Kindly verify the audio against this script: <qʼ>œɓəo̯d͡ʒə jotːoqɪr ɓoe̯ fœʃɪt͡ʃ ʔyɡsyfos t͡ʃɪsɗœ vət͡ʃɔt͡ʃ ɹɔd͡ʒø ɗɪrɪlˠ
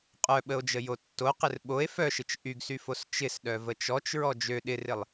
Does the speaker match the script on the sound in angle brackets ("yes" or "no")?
yes